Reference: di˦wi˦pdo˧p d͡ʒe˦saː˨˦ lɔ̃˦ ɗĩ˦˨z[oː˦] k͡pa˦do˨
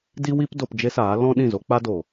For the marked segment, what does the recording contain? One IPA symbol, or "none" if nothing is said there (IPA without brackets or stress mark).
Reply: o˦